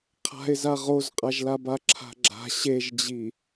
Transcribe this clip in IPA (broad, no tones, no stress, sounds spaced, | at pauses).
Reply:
qʰ a̤ ɪ̯ z a ʁ o z qʼ a ʒ l a b a ǁʰ a̤ ɡ͡ǁ a̤ ɕ e ʒ d͡ʑ i